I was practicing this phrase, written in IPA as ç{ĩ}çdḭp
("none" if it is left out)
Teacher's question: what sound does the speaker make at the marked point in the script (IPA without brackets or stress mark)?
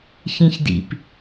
ĩ